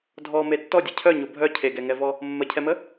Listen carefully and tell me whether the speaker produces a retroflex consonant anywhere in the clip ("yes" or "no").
no